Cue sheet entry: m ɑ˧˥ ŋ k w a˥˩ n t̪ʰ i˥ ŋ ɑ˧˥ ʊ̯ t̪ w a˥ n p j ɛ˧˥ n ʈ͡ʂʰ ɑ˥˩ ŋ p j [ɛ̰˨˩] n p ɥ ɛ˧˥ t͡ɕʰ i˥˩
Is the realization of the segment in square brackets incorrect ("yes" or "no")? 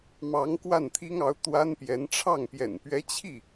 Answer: no